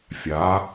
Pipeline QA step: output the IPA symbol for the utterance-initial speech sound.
fʲ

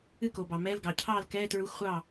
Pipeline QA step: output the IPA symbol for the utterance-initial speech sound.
ɨ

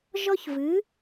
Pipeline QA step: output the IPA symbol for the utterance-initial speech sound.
ʒ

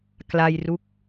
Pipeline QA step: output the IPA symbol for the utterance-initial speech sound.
k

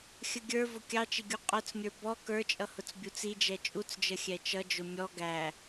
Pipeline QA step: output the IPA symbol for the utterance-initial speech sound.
xʲ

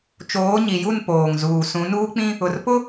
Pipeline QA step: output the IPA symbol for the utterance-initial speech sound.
t͡ʃ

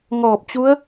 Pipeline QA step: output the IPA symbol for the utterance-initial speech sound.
ŋ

